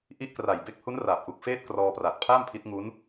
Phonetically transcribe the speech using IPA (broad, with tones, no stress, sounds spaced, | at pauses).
ʔ i˥˩ ʔ k r a˨˩ j b e˦˥ k̚ h u˦˥ n r aː˨˩ p̚ ʔ u˨˩ k̚ f eː˥˩ t̚ k r ɔː˧ p r a˨˩ t̚ pʰ a˥˩ m pʰ i˦˥ t̚ ŋ u˦˥ n